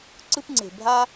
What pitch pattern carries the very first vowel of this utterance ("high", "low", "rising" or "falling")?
high